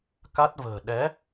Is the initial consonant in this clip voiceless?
yes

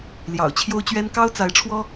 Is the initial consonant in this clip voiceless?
no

